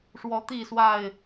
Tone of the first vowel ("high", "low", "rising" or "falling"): rising